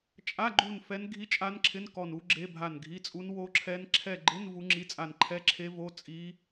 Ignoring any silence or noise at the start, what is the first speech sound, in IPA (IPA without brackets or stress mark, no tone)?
t͡ʃʼ